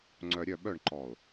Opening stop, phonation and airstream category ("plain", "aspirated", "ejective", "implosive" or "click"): click